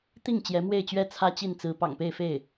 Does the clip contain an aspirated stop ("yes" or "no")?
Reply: yes